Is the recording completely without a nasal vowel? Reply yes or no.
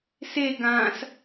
no